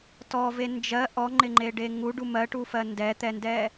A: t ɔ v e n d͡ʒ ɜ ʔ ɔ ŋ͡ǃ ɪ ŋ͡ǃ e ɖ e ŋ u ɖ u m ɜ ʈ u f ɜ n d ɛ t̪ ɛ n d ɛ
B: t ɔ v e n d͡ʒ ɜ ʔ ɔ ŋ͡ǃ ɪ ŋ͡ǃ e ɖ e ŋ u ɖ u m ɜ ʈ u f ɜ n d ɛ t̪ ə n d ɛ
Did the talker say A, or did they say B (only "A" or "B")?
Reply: A